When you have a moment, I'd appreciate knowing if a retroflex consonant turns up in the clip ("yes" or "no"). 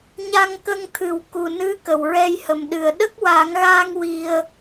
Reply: no